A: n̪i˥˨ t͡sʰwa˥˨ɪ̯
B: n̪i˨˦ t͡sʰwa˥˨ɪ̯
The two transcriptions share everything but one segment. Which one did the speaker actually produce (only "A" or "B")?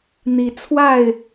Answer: B